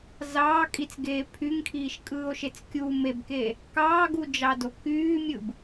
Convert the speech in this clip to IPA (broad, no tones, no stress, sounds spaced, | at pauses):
z ɑː kʼ i t͡s ɡ eː pʰ y ŋ kʰ iː ʃ kʼ ɯː o̯ ʃ e t͡s kʲ u m e b k e | k ɑː ɡ u d͡ʒ ɑ d o k yː mʲ ɯ b